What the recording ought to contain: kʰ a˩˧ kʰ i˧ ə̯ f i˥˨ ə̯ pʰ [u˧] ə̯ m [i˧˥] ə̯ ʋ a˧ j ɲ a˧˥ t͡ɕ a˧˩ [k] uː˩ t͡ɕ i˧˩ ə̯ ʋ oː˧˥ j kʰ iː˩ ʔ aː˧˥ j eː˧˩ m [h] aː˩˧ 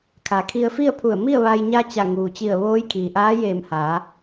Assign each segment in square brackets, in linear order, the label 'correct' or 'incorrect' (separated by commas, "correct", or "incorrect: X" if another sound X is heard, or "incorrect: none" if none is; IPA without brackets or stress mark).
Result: incorrect: u˧˩, incorrect: i˥˨, incorrect: ŋ, correct